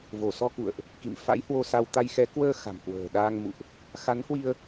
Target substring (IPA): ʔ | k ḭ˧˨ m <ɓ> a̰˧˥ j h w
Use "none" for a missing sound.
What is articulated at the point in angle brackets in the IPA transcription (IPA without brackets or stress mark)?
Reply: f